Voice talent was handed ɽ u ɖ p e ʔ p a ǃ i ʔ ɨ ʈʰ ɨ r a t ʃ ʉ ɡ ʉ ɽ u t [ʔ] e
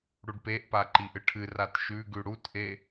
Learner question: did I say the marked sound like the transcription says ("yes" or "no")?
yes